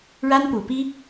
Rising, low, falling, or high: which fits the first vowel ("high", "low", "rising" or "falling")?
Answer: high